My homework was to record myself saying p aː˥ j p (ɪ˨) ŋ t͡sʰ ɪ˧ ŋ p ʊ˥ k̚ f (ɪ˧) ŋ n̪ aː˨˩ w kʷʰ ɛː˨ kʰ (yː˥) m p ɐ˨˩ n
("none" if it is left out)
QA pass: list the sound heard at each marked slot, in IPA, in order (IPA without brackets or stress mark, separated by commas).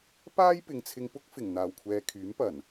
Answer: ɪ˨, ɪ˨˩, yː˨˥